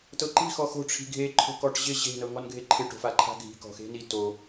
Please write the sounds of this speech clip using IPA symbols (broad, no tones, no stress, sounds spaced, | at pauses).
t ɤ ǃ i̤ x ɔ x o̤ ʈ͡ʂʰ i̤ ɡʱ e ǃʰ o̤ k ɔ ʈ ʑ ɪ ʑ e̤ n ɤ ŋ ɔ n ɡʱ e ǃʰ ɪ ʈ o̤ f a ǃʰ a̤ ɡʱ i̤ k ɔ̤ x e̤ n i t o